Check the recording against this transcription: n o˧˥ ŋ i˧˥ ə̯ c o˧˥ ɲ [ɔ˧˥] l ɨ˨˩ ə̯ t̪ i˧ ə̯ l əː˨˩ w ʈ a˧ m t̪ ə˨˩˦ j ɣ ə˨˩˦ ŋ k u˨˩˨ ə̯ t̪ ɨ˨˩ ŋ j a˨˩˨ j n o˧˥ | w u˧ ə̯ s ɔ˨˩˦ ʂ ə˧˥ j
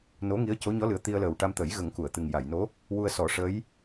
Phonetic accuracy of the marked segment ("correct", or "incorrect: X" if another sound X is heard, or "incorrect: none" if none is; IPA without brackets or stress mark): correct